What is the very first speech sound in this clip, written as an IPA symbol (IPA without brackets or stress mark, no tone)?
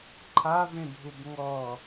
ǃʰ